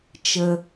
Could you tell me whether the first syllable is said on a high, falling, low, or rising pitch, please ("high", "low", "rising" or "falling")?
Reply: low